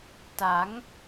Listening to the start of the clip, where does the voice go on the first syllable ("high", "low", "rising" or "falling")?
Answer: rising